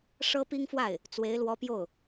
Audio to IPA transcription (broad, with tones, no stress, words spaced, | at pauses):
ʂɤ˥pi˥ŋfwa˥˩ɪ̯ | t͡swe˧˥ɪ̯lwɔ˧˥ pjo˥˩ʊ̯